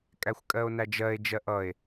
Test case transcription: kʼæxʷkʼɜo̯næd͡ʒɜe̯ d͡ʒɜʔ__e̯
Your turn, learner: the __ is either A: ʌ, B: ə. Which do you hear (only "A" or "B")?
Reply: A